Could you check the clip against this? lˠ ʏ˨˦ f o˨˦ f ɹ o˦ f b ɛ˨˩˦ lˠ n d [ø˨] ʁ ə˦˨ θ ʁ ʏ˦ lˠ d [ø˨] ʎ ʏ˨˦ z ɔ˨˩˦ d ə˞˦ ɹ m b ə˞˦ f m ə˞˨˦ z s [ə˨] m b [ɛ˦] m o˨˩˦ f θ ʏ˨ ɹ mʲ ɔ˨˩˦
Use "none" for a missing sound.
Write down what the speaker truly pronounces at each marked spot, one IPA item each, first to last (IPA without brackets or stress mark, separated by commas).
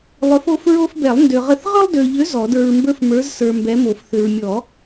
ø˨, ø˨, ə˞˨, ɛ˨˦